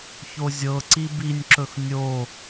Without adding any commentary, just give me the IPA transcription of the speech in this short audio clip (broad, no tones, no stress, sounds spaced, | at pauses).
ç o zʲ ɤ ǀ i b i nʲ ǁ ɵ x nʲ o